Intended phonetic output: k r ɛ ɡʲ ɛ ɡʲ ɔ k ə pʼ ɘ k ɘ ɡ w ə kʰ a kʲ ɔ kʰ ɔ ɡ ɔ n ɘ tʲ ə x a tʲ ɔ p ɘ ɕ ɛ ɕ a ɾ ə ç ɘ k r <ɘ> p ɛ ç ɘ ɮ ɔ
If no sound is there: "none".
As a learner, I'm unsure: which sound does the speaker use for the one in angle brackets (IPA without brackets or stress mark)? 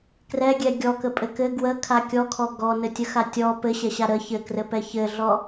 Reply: ɘ